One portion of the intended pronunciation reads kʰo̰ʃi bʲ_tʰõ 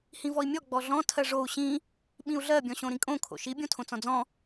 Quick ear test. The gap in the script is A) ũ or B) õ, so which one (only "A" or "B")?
B